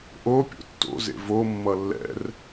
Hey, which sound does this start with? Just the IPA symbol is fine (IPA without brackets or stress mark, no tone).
ʔ